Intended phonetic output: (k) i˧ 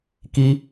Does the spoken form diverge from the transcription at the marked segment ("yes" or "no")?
no